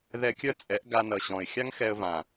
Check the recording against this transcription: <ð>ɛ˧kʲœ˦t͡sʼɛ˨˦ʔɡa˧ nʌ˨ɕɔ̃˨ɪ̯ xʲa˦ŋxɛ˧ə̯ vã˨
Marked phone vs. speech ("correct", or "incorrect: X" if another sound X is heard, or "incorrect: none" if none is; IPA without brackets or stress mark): correct